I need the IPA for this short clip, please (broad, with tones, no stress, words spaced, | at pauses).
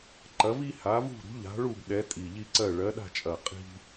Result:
ǃɐ˨˦vi˦ha˨˦ vṳ˦˨ ɾṳ˨˦ʎa̤˨˦ɭu˦˨b ɗɛ˨˦ tʼi˨˩ʎi˦ǀɜ˦˨ ɭɜ˨˦ɗa̤˦˨t͡ʃʼɐ˨˩ qʼi̤˦